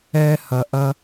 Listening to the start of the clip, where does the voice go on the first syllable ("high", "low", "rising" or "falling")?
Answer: high